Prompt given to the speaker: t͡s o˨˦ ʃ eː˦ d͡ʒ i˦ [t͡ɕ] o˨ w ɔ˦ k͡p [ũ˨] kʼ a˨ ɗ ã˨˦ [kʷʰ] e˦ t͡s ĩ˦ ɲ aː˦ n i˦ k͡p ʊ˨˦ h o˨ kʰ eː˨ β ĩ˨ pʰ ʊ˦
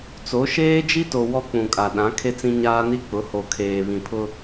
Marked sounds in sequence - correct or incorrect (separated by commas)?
incorrect, correct, incorrect